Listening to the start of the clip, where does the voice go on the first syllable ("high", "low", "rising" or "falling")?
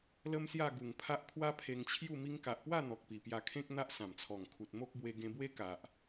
high